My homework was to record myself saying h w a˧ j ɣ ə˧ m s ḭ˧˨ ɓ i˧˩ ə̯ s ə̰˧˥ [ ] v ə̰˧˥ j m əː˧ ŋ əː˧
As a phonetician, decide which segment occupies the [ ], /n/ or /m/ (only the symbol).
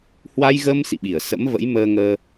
m